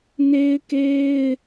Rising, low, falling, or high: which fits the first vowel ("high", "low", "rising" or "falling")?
high